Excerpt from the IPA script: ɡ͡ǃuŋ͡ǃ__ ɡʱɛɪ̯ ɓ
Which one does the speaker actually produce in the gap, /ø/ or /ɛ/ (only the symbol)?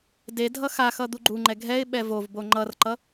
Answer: ɛ